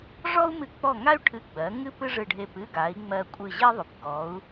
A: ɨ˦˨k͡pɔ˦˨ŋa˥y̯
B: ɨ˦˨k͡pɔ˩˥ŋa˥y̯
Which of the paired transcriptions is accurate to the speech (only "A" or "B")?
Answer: A